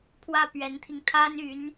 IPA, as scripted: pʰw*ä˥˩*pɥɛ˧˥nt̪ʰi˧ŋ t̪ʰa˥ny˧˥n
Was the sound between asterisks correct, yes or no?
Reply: yes